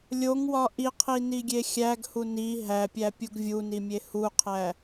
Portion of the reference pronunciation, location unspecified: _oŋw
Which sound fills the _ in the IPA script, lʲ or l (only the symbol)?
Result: lʲ